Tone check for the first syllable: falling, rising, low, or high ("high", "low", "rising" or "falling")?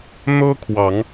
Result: high